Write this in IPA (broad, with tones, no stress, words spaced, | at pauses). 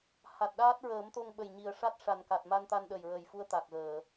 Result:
ha˨˩t̚ɗaː˦˥t̚ ɹəː˨˩˦mt̪o˧ŋɓə˨˩j ɲi˨˩ə̯ʂa˦˥t̚ʂa˨˩n ka˨˩t̚ma˧nt̪a˧nɗə˨˩j ɹə˨˩jfu˧˥ə̯ t̪a˨˩k̚ɣəː˨˩˨